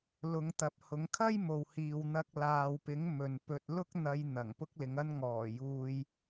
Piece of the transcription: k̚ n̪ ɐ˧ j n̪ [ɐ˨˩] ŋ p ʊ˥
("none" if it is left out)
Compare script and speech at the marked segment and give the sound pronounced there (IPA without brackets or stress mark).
ɐ˨˩